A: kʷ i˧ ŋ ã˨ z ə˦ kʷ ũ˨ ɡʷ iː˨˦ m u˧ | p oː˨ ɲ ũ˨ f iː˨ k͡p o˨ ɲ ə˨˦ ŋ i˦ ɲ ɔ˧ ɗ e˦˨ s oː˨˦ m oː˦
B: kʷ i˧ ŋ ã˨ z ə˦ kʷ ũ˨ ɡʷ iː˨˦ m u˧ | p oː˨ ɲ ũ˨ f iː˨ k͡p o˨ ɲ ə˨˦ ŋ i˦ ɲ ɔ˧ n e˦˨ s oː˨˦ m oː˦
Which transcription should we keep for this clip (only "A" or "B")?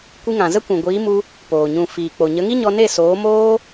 B